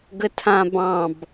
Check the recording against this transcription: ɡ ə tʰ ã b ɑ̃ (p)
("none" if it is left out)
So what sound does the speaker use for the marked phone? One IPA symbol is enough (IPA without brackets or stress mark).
b